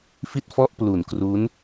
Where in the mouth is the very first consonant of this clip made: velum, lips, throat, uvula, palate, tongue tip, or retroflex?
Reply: lips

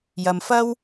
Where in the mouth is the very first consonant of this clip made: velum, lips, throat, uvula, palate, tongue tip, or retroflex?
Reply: palate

